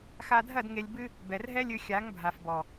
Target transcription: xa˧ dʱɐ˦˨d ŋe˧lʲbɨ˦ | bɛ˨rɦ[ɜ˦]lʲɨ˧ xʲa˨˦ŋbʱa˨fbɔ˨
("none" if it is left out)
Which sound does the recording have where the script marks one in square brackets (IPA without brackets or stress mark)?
ɛ˦